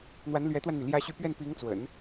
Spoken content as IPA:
n̪ w a˧˥ n l ɥ ɛ˧˥ t̪ w a˧ n n̪ y˩ l j ä˥ ɕ y˥˧ p ɥ ɛ˥˩ n p i˧˥ ŋ t͡s w ə̰˨˩˦ n

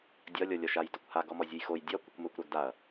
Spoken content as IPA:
dʲ ɒ lʲ ɔ lʲ ɒ ʃ a j d ɒ kʷ h a ɡ ɔ m ɔ zʲ u j x o j dʲ ɒ kʷ ə kʷ m ʊ kʷ ɾ œ ɡ d a ɐ̯

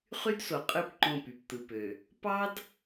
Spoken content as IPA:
χ y˦ d s o˨ qʼ ɯ˦˨ p ǃ õ˦˨ p y˨ p t̪ ɯ˨ p ø˨ | p ɑ˦ d

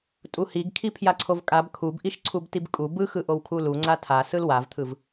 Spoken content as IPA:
tʼ u h i ɡ kʰ i pʰ j a ǀʰ o v kʼ a b kʰ u b ʔ i ʃ ǀʰ u b t i b kʼ u b ɯ x ɯ ʔ o w kʰ u l u ŋ͡ǀ a tʰ a s ɯ l w a v t̪ʰ ɯ v

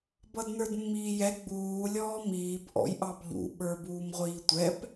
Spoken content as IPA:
b ʌ d n ə˞ d mː iː j ɛ ɡ͡b uː lʲ ɔː m iː b ʔ ɔ̰ j ʔ ɑ b ʎ ṵ ɓ ə˞ b uː m ʁʷ iː tʷ ɛ p

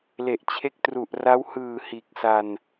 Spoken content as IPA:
l e˨˩ ʔ t͡ɕʰ e˦˥ k̚ t r u˨˩ ʔ r a˦˥ w h ɯː˨˩ h iː˨˩ k̚ s a˧ n

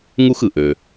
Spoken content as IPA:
ŋ u˦ x ɯ˩ ʔ ø˩

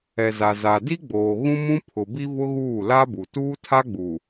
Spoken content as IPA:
ɛ˨ z a˨ z a˨ d i˦ ɡ͡b oː˨ ɣ ũ˦ m ũ˦ pʰ ʊ˨ b i˦ v ʊ˦ ɣ uː˦˨ l a˦ b u˨ t uː˦ tʰ a˦ ɡ͡b u˨

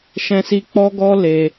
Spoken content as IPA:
ʃ ɛ̃˦ s i˦ k͡p ɔ˦ ɡ ɔ˦ l e˦

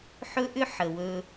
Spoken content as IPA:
ħ ɵ˦ ʔ ʏ˦ ħ ə˨ w ɵ˧

